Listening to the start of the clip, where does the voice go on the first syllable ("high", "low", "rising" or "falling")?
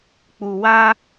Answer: low